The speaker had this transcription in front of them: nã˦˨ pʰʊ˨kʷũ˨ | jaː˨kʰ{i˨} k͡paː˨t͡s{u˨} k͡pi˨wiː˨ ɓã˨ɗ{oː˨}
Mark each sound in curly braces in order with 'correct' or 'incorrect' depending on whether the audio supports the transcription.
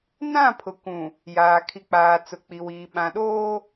correct, incorrect: ʊ˨, incorrect: oː˦

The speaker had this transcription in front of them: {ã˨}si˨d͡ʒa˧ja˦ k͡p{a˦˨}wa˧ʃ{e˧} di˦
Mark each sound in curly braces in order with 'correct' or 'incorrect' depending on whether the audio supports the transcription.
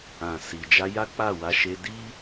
correct, correct, correct

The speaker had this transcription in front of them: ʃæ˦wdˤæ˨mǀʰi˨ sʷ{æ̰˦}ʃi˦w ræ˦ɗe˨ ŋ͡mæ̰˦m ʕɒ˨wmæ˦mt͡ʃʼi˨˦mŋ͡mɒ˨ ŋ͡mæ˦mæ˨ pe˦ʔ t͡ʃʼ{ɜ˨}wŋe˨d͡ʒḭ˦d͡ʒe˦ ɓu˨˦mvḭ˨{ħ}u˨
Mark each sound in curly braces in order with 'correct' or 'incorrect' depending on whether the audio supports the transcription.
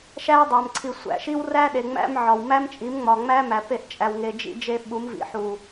incorrect: æ̰˨, incorrect: æ˨, correct

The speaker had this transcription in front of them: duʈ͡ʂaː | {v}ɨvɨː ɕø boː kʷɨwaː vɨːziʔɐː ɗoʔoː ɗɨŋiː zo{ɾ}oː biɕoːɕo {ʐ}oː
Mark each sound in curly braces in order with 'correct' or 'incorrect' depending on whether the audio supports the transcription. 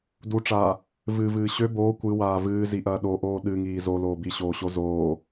correct, incorrect: l, incorrect: z

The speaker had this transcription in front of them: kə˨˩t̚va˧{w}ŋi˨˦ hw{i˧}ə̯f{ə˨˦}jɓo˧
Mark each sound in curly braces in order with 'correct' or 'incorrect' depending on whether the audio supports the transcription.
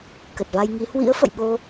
incorrect: j, incorrect: ḭ˧˥, incorrect: ə̰˧˨

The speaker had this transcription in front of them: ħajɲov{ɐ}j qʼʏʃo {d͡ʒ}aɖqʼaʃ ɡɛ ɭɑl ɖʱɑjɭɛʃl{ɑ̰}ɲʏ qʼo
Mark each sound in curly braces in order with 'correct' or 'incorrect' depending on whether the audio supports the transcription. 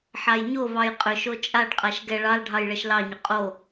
incorrect: ɑ, incorrect: t͡ʃʼ, incorrect: ɑ

